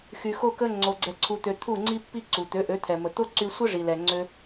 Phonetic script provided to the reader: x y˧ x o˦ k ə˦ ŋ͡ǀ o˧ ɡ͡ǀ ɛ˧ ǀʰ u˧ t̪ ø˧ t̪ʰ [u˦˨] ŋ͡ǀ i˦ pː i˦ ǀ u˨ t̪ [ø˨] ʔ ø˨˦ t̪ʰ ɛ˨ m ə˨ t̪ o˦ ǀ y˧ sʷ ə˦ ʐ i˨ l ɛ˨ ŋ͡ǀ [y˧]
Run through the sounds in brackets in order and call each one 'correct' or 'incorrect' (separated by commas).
correct, incorrect, incorrect